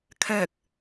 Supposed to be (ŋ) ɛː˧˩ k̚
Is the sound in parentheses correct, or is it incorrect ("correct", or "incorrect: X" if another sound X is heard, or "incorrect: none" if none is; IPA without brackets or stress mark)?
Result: incorrect: kʰ